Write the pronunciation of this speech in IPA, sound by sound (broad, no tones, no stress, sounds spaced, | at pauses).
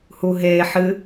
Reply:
h u ɦ eː ħ ɨ